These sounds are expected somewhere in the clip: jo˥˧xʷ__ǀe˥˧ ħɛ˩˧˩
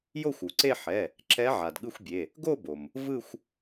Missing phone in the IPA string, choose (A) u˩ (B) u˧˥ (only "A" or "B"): A